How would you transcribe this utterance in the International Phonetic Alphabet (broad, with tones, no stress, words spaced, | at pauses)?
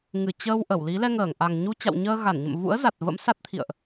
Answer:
ŋɨ˧˩ t͡ɕəː˧w ʔə˧˩wli˨˦ lɛ˧ ŋəː˧˩ŋʔa˨˩ŋ ɲu˧t͡ɕa̰˧˨wɲəː˧ ɣa˧˩nɲə̰˧˨m vṵ˧˥ə̯za˨˩t̚ və̰˧˥msa˦˥t̚t̪ʰḭ˧˨ə̯ʔ